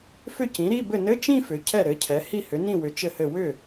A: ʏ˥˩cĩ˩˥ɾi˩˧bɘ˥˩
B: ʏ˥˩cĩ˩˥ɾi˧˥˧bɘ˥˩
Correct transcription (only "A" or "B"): B